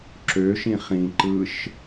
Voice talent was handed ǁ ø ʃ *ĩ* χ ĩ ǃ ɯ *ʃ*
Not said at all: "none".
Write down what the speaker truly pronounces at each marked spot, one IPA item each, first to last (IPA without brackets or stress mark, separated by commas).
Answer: ĩ, ʃ